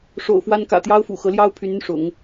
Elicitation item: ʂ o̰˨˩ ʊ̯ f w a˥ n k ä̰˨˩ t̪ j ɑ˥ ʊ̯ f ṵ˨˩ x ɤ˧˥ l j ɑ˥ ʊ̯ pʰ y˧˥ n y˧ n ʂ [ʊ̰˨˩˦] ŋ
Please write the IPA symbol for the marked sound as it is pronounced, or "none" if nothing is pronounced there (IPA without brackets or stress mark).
ʊ̰˨˩˦